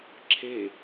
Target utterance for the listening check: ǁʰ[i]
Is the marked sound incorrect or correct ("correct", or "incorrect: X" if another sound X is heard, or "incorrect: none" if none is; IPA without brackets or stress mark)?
incorrect: e